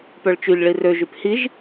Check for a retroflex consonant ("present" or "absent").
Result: present